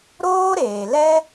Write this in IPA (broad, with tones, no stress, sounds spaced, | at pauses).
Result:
ɾ oː˦ ɾ eː˨ l ɛ˦